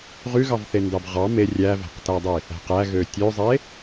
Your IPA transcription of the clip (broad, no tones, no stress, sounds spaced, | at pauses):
ʁ y ɣ ɑ v θ e n d ɑ b ʁ ɑ m e rʲ æ v æ̤ q t æ dˤ i | æ̤ q æ ɣ ø tʲ ø zˤ e